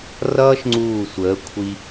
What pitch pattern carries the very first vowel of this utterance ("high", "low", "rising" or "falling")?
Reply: high